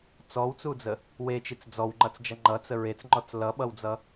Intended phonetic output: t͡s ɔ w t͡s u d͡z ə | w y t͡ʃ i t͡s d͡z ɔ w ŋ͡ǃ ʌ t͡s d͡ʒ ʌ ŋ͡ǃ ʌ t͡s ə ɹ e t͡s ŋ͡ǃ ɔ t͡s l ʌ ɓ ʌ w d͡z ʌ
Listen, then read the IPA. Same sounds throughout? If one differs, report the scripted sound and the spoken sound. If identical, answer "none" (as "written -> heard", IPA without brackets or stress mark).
y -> e